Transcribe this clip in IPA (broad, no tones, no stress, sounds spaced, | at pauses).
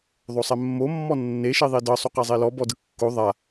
ðˤ o sˤ ɛ mː o mː ɔ nː e ʃ i ðˤ i d ɤ sˤ u q a zˤ e l ɔ b ɔ d ɯ kː o ðˤ a